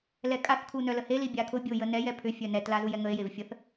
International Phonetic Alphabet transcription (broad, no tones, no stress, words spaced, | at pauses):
lɛkʼaθ kʰunœləhe libʲakʰʊ bʲʊ jənɛj ɛpʰʏ fʲœnɛt lazujɛŋəe̯ jevfʲəθ